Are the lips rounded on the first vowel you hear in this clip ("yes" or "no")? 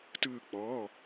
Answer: no